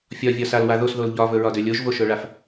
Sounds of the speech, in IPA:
fʲ ɒ vʲ ɒ s a l w a ð o s ð o l ʎ ɒ v ɵ ɹ ɒ d ø lʲ o ʒ v o ʃ ɵ ɭ a f

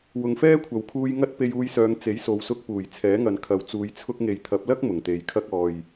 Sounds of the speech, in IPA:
w ʊ˨ ŋ f ɛː˥ kʷʰ ɐ˨ w kʰ uː˧ j ŋ ɐ˥ t̚ p e˧ j uː˧ j s œː˨˧ ŋ t͡s e˨˥ j s o˨˧ w s ʊ˧ k̚ p uː˨˩ j t͡sʰ ɛː˨˥ ŋ ɐ˨ n kʰ ɐ˨ w t͡s uː˨˧ j t͡sʰ ʊ˧ k̚ ŋ e˨ j t̪ʰ ɐ˨˥ p̚ l ɐ˥ k̚ m ʊ˨˩ ŋ t̪ e˨ j kʰ ɐ˥ k̚ ɔː˨ j

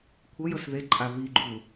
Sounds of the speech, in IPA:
kʷʰ ɤ j ɤ s ð e ǃʼ a β i ɡ͡ǃ u

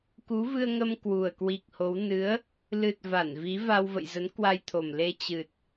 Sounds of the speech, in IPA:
k u˨˦ v ɨ˧ ə̯ ŋ ə˧ m k w u˨˩ ə̯ k w i˨˩ k̚ h o˨˦ w n ɨ˨˦ ə̯ | l ɨ˨˩ t̚ v a˧˩ n v i˨˦ v a˧ w v ə̰˧˨ j z ə˨˦ n k w a˧ j t̪ʰ o˨˩ m l e˧ t͡ɕ ɨ˨˩ t̚

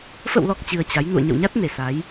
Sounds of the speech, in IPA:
f ə̰˧˨ w l ɔ˨˩ k̚ t͡ɕ ɨ˧ ə̯ t͡ɕ a˨˦ j n ṵ˧˨ ə̯ ɲ ə̰˧˨ w ɲ a˦˥ t̚ n e˧˩ s a˨˦ j

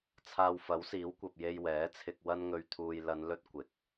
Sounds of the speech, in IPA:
t͡sʰ aː˧ w f ɐ˨˥ w s iː˨˥ w kʷ ɐ˨ p̚ j e˧ j w ɛː˨˥ t͡sʰ ɪ˧ k̚ w ɐ˥ n ŋ ɵ˧ ɥ t̪ʰ uː˧ j l ɐ˨˧ n l ɵ˥ t̚ kʷ ɪ˨˥ k̚

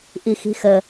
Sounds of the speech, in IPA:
ʔ i x i̤ x ə

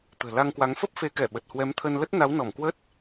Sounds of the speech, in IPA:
t̪ ə̤ː˨˩ l a˧ ŋ k w a˨˦ ŋ f ə˦˥ p̚ f e˨˦ k ɛ˧˩ ɓ ə˨˩ t̚ h w ɛ˨˦ m t̪ʰ ə˧ n l ə˦˥ t̚ n a˨˦ w n ɔ˧˩ m k w ə˦˥ t̚

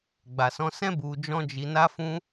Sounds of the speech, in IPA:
ɡ͡b a˨ s ɔ̃˧ s ɛ̃˦ b u˧ d͡ʒ ɔ̃˦ d͡ʒ i˧ n a˦ f ũ˦

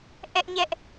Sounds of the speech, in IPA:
ʔ ɛ˦ ʔ ɲ ɛ˦ ʔ

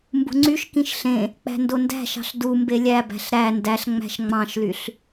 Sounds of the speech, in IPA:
m b ṳ ŋ͡ǀ y ʃ k ĩ ʃ ɬ ẽ | k͡p æ̤ n d o n d æ̤ ʃ ɑ̤ ɬ d u m b e lʲ æ b æ̤ ɬ ɾ æ n d æ ɬ ŋ͡m æ̤ ʃ ŋ͡m ɑ̃ ʃ l y ɬ

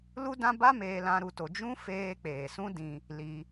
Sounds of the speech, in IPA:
l u˦ d ã˦ b a˦ m eː˧ l ã˧ ɾ u˧ t o˧ d͡ʒ ũ˦ f eː˧ k͡p eː˨ s ũ˦ d ĩ˧ | l i˧

